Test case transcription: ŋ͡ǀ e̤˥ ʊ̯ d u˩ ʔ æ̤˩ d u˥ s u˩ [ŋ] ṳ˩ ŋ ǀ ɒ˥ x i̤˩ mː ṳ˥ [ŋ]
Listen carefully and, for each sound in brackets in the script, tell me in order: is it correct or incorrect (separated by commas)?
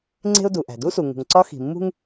correct, correct